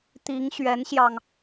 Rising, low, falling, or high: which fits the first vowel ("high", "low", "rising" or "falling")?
rising